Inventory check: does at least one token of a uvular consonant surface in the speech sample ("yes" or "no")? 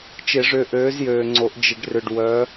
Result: no